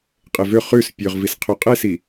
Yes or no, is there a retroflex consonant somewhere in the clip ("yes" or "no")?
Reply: no